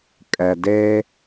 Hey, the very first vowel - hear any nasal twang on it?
no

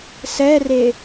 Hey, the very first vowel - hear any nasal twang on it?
no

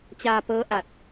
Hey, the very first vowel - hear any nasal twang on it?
no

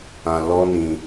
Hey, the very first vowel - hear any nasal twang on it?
yes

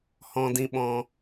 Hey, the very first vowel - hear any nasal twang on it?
yes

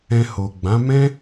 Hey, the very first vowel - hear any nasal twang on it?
yes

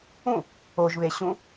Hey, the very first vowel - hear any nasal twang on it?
yes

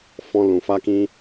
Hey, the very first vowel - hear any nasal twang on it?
yes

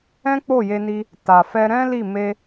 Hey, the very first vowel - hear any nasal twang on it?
yes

